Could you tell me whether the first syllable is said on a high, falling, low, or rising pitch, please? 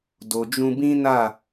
low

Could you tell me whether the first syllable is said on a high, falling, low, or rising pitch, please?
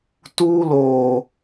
high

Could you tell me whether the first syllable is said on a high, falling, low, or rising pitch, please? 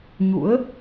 rising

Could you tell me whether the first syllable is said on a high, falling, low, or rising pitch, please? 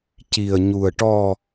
low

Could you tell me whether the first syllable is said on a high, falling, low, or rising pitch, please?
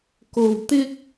low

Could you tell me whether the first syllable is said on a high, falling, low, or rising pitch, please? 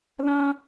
high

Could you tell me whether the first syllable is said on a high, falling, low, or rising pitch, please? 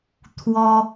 high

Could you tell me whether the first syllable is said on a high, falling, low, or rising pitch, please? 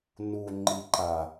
low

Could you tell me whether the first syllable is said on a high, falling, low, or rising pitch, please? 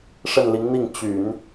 falling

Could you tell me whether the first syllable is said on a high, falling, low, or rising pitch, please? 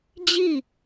falling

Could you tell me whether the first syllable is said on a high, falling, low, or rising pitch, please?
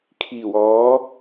low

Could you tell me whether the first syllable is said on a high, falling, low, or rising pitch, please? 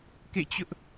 falling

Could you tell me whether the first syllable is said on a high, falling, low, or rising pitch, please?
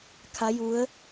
rising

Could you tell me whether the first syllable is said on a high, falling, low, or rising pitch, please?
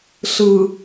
low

